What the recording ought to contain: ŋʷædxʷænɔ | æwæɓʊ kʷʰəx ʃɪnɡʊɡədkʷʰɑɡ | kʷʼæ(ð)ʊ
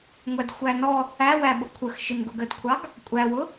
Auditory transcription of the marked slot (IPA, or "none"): w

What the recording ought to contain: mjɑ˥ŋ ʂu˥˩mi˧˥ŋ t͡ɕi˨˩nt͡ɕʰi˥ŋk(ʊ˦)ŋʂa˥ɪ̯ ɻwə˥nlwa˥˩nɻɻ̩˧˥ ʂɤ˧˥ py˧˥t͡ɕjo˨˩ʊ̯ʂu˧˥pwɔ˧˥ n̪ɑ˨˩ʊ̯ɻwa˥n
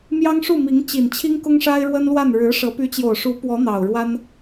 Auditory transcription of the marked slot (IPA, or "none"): ʊ˥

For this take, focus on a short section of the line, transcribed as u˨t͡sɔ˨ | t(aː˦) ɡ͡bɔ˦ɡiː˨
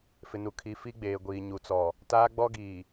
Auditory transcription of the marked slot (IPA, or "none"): aː˦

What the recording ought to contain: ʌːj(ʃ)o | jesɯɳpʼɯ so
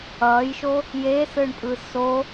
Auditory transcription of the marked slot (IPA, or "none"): ʃ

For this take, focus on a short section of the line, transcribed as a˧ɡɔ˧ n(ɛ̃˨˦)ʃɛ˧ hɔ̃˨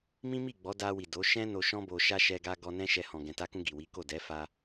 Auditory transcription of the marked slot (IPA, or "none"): ɛ̃˦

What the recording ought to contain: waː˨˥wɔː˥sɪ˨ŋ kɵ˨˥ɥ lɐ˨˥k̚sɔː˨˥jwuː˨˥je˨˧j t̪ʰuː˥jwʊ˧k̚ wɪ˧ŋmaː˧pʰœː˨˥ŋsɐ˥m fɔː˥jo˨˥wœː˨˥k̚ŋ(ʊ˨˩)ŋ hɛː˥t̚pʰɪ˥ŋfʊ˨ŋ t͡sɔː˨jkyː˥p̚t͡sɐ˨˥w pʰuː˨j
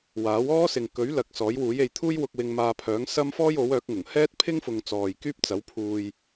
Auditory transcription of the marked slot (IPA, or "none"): ʊ˨˩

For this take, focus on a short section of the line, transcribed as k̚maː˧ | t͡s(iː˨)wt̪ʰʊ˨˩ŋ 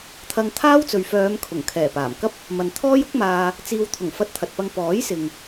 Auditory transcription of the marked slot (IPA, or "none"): iː˨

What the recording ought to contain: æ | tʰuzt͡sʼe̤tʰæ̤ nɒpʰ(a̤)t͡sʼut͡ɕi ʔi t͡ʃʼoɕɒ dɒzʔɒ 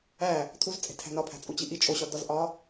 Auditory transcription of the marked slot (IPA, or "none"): æ̤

